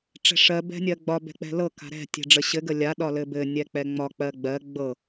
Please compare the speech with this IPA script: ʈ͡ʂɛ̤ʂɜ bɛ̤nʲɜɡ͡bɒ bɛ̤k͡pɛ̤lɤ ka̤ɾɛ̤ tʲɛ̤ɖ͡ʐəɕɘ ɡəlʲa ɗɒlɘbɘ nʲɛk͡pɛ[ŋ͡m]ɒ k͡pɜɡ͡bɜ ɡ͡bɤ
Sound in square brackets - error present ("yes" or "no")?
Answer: no